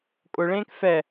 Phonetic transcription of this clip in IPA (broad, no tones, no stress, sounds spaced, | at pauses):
kʼ ʊ ɭ ẽː k f ɛ